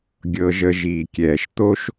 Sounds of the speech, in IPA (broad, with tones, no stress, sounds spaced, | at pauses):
ɡʲ ɤ˧ ʒ ə˧ ʒ iː˨ kʲ ɛː˨ ʃ t̪ o˦ ʃ